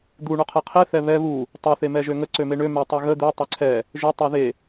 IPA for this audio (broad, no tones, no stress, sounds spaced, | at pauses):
d̪ u ɳ o qʰ ɛ qʰ e θ ɛ β ɛ β u | tˤ e θ e m ɛ ʒ ø ŋ ə ǀ ø m e ɳ ø m ɛ tˤ ø ɣ ə d̪ ø tˤ ø ǀʰ ɛ | ʒ ø tˤ o ð e